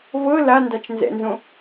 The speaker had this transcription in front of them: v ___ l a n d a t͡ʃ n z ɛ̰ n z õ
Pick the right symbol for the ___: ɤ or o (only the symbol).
ɤ